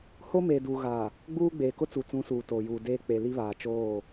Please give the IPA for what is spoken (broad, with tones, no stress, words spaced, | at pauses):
ho˦meː˨duː˨ɣa˨ | ɡ͡buː˦ɡ͡beː˨ kʊ˦t͡su˨t͡sũ˨˦ suː˨toː˨juː˨deː˦ k͡pe˨li˦βaː˨t͡ʃoː˦˨